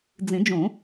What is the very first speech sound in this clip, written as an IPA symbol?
d͡z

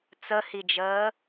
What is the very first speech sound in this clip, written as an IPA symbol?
t͡s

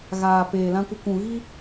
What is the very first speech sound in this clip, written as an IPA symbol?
ɣ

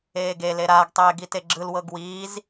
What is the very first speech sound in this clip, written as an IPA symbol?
eː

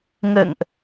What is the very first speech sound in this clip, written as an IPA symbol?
ŋ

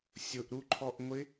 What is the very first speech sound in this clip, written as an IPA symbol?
sʲ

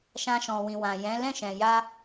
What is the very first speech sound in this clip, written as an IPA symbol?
ʃ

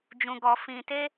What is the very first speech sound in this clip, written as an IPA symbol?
d͡ʒ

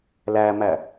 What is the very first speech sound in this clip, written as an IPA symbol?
l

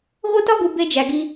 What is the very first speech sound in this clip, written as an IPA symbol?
ɣ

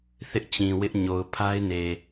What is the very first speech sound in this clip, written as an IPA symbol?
θ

